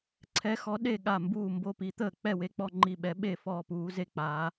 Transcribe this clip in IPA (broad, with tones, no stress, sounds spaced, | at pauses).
ǀʰ ɛ˧˥ x ɔ˧˥ ɗ e˥˩ ɠ a˥˩ m b uː˥˩ m b o˥˩ p i˧˥ t̪ əː˥˩ k͡p ɛ˥˩ w e˧˥ k͡p ɔ˥˩ ŋ͡ǃ i˥˩ ɓ ɛ˧˥ ɓ e˥˩ f ɔː˥˩ p uː˧˥ z e˥˩ k͡p aː˧˥